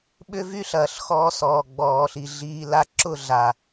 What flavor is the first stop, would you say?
implosive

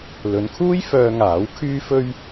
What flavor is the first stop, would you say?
aspirated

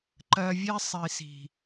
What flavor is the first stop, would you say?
click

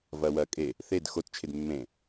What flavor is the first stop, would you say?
ejective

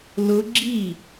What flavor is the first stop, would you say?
click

